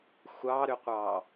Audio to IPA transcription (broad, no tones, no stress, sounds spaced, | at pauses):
xʷ ɑ ɾ ʏ qʷ ɑ